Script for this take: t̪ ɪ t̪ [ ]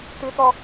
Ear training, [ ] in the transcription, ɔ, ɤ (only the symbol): ɔ